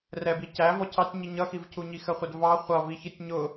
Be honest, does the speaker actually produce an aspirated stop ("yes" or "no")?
yes